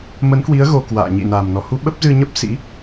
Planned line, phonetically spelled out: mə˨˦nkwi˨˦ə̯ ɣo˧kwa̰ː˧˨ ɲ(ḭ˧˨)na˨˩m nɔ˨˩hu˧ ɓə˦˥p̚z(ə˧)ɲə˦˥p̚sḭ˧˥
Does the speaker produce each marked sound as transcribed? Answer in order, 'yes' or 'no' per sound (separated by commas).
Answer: yes, no